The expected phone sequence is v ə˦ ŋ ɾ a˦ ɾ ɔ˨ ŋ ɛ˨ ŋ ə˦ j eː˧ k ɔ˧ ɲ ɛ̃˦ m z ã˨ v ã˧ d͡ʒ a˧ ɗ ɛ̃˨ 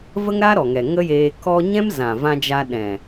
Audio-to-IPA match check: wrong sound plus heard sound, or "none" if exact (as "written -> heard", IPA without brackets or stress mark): none